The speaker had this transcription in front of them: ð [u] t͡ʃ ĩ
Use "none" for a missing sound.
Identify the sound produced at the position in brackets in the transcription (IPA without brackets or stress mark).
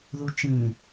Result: u